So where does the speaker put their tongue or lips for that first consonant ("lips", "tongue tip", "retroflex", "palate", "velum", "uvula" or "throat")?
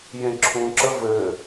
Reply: palate